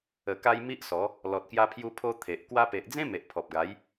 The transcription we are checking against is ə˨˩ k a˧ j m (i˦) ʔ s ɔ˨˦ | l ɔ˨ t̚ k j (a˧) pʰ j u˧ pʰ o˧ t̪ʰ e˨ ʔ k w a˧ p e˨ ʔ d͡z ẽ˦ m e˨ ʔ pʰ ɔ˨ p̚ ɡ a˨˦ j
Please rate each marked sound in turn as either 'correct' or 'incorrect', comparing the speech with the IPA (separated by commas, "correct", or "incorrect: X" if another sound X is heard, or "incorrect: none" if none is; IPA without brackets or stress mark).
correct, correct